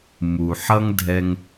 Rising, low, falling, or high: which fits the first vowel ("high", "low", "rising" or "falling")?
low